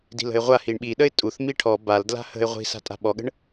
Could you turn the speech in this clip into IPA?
di̤lə̤ɪ̯ʁʷa hiɳɓiɗəɪ̯ tʼuθ miʈʰɔ bal dla̤hə̤ɪ̯ ʁʷi̤sa̤tʼa̤ ɓɔɠə̤ɳ

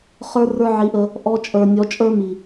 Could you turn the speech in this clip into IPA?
χə˞˦rə˞˦ʕi˧ʔə˧ | ʔɔ˧t͡ʃʼə˞˨ nʲɔ˨˦t͡ʃʼə˞˦ mi˨

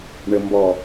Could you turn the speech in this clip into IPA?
ɳə mbɔ

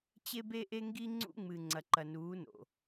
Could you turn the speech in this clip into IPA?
t͡ɕe˦be˦ʔe˦ŋɡi˦ ŋ͡ǀṵ˦ŋ͡mɨ˨ ŋ͡ǀɐ˨ǃɐ˨nuː˨˦no̰˨

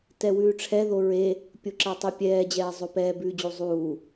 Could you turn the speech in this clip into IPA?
tɛwʉːʈ͡ʂʰɛ ðoɹe | pʲoǁatˤipʲɛː d͡ʑɛːzˤopɛː bʉːd͡ʑuzˤuː

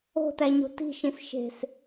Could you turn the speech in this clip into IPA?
o̤tæɲo̤ ti̤ʃĩs ʃe̤s

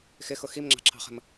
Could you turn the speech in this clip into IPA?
xɪxʊ ximŋ͡ǁɑ̤ǁʰɑ̤χə̤m

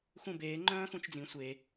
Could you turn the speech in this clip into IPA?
xũbeː ŋ͡ǃœ̃ːxũt͡ʃd͡zĩ sʷe

